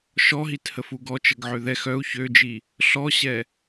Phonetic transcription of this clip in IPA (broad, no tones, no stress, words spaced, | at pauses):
ʃɔɦithəfu ɡɔt͡ʃəɡ ʕøðɛ xœu̯ çød͡ʒi | ɬɔɕɛ